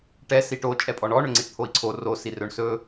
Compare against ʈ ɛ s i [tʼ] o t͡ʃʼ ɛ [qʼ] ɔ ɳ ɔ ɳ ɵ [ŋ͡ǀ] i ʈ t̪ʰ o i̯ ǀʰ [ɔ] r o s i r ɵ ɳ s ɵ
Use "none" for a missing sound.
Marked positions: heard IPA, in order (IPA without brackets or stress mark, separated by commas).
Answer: ʈ, pʼ, ŋ͡ǀ, o